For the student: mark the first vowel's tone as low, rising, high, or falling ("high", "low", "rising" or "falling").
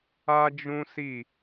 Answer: high